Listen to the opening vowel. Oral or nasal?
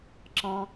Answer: nasal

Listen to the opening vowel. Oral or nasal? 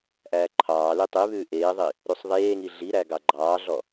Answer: oral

